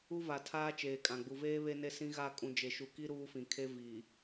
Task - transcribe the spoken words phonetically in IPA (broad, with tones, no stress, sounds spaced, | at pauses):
u˦ v a˨ tʰ aː˦ t͡ʃ eː˨ kʼ ã˨ ɡ͡b u˨ v eː˦ β e˦ n e˦ s ĩ˦ ɣ a˦˨ kʼ ũ˨ d͡ʒ e˨ ʃ u˨ k i˦ ɾ uː˦ f ĩ˨ kʰ e˦ v iː˨